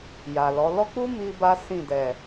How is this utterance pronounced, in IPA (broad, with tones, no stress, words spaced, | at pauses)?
ja˨lɔ˨˦ lɔ˦k͡pu˦ mi˦ba˦ sĩ˦˨ dɛ˨